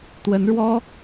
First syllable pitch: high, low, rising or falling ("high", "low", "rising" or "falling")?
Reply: rising